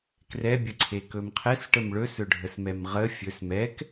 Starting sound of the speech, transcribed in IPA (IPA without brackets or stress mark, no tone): k